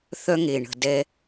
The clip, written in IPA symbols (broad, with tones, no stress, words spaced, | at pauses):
θœ˦ŋe˨ ɳə̤˨dɛ˦